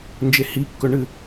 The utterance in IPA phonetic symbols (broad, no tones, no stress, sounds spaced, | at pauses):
n d͡ʒ e h i kː ɵ ɳ ɨ